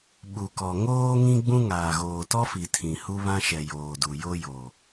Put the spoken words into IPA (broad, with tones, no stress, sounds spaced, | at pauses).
ɓ u˨ k ɔ˨ ŋ oː˦ ŋ ĩ˦ ɡ͡b ũ˦ ŋ aː˨ ɣ oː˨ t ɔ˦ f i˨ tʰ ĩ˨ h u˦ β ã˦ ʃ ɛ˨ j oː˨ d u˨ j o˦ j o˨